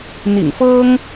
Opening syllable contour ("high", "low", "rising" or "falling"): low